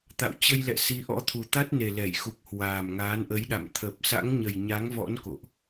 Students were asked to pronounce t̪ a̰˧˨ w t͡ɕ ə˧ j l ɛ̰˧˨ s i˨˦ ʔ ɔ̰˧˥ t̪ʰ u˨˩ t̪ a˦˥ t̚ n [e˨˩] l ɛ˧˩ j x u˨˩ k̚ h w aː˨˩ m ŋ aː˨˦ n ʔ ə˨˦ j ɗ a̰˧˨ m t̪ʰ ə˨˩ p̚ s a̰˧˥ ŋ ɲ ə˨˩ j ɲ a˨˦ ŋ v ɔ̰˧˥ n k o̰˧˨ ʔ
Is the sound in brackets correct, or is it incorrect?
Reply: correct